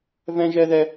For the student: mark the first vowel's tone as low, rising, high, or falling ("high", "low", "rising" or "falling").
high